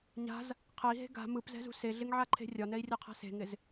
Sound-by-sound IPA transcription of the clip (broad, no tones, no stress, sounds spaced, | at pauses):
ɲ a̤ z | qʰ ɛ i̯ ɦ e̤ ɡ a̤ m ɯ p z ɛ̤ z ṳ s e ɮ ɪ ŋ ʕ a ǃʰ e̤ rʲ ɒ n ɛ i̯ rʲ ɒ qʰ a̤ s e̤ ŋ ɪ z